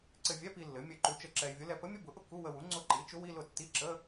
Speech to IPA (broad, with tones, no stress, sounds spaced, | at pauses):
ǀ ɘ˧ vʲ ɛ˧˥˧ p i˧ lː ɘ˩˥ mʲ ɘ˥˩ ǃ u˧˥ t͡ʃ ə˥˩ ǁ ɛ˧ e̯ vʲ ʊ˧˥ l ɛ˧ p ə˧˥ mʲ ə˧˥˧ b ʊ˩˥ ʔ ʊ˧ k u˧˥˧ w ə˧ w u˩˥ ŋ͡ǀ ʊ˧˥ ǃ i˩˥ t͡ʃ ʊ˧˥ w i˧˥˧ l ʊ˥˩ tː i˧˥˧ ǁ ə˧˥˧